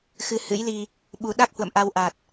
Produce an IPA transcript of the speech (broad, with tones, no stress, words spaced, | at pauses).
xɨ˧hɨ̰˧˥jli˧ | ɓu˧ ɗa˦˥k̚hwə̰˧˨m ʔa˧wʔa˨˩t̚